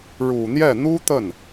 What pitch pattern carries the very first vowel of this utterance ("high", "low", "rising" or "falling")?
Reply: low